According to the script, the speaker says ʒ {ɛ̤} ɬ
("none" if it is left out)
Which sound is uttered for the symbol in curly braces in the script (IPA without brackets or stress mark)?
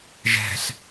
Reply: ɛ̤